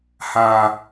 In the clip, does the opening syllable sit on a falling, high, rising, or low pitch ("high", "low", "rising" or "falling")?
low